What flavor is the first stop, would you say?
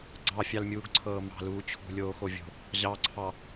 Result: click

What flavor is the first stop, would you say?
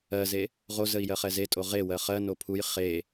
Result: ejective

